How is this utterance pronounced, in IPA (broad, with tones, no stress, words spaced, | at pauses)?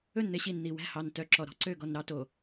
ɵ˦˨nn̪e˦ɕi˨n n̪i˨wæ̤˦˨ hɑ˨ntœ˨ ǁɔ˨ɾɔ̤˦ǀø˦˨ ɡɔ˨nɾɑ˦ to˨